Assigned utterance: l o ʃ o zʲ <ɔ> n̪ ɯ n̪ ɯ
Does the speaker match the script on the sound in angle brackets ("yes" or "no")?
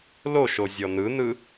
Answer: yes